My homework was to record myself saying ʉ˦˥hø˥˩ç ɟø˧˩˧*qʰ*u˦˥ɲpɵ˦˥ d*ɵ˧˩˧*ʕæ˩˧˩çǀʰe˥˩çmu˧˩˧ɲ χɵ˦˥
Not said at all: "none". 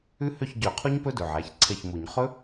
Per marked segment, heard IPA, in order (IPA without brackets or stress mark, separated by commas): qʰ, ɵ˩˧˩